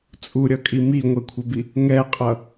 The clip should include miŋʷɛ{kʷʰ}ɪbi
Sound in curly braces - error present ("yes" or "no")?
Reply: no